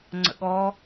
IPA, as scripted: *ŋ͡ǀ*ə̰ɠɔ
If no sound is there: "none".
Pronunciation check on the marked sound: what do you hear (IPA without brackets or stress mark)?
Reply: ŋ͡ǀ